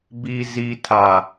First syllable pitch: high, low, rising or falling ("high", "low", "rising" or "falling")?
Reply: low